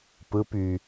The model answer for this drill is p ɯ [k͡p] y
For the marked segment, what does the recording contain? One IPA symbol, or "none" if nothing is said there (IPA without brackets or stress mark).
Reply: p